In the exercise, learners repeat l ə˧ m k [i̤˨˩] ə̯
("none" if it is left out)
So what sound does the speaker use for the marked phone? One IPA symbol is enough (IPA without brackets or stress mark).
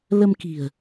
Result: i̤˨˩